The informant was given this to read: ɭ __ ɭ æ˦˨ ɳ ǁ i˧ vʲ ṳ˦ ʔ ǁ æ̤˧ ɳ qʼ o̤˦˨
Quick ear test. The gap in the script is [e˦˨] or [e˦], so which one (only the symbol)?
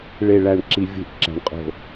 e˦˨